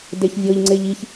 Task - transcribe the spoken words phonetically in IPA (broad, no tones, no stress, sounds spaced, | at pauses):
d e ç vʲ ɤ ʎ ŋ͡ǀ e ʎ i ç